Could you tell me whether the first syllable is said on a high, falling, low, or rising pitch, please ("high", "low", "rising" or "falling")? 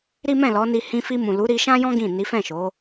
high